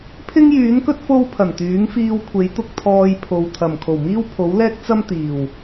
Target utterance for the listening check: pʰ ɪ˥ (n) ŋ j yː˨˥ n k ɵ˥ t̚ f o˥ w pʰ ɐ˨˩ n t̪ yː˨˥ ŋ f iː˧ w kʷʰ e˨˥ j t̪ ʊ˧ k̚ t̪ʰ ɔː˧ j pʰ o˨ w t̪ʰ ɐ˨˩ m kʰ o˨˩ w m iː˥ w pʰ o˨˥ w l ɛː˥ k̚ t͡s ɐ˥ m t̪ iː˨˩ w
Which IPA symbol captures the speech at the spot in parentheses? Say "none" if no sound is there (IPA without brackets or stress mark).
none